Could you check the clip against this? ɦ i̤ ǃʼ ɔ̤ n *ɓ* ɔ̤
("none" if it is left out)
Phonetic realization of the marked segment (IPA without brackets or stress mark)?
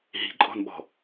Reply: ɓ